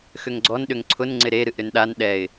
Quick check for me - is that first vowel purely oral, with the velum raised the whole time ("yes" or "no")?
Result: yes